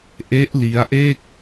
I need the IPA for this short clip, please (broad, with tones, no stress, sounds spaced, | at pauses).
ʔ e˦˥ ʔ l i˦˥ a̯ ʔ e˥˩ k̚